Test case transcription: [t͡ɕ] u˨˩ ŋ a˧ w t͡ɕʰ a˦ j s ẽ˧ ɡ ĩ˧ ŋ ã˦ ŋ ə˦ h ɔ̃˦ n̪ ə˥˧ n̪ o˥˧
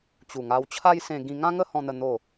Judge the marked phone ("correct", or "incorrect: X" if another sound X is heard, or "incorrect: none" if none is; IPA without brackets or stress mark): correct